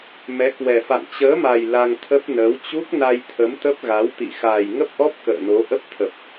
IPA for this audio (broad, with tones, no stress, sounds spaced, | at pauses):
m ɛ˨˦ k w ɛ˨˩ f a̰˧˨ ŋ t͡ɕ əː˨˦ m a˨˩ j l a˧ ŋ t̪ʰ ə˦˥ p̚ n əː˨˦ w t͡ɕ u˦˥ k̚ n a˧ j t̪ʰ ə˨˦ m t̪ ə˦˥ p̚ ɣ a˨˦ w t̪ ḭ˧˨ x aː˨˩ j ŋ ə˦˥ p̚ ʔ ɔ˦˥ p̚ k ə̰ː˧˨ n o˨˦ ʔ ə˦˥ p̚ t̪ʰ ə˨˩ p̚